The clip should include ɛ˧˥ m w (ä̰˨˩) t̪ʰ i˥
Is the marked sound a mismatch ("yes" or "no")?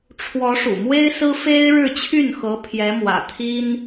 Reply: no